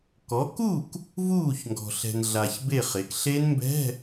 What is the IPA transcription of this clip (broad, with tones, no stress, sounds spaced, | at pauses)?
k ɔ˩˥ k u˥˩ k | v uː˥˩ ç ŋ ɡ ɔ̤˨ ɬ ɛ̤˨ n ɮ a˨ ç b e˥˩ χ e˩˥ k ɬ e˦˥ n m b ɛ̤˧˥˧